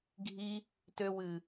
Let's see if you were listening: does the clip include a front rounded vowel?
yes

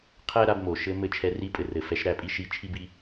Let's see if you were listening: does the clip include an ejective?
yes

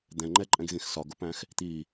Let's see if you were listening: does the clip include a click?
yes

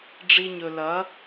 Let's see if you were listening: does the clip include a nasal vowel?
no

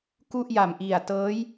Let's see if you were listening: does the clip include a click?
no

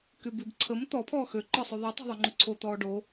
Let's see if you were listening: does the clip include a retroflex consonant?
yes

